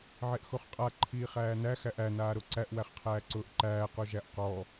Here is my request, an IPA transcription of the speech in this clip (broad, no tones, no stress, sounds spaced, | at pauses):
ʕ e ʔ x o χ qʼ a ǃʰ iː χ æː n æ x æ ʔ æ n aː ɾ o ǀ æ ʔ w æ χ qʰ æː ǀ ʊː ʔ ǃ æː q o ʒ æ ʔ q ɔ